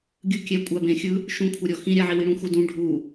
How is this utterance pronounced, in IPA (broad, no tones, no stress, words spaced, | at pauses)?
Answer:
ɡʲɯ kʲɛ kʷʼabẽxʲɯ | ʃũkʷʰaɾʲɔ xĩɾʲaʕi wiɽũxudũ ɖʱu